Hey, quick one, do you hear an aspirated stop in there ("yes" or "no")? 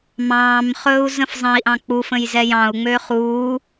no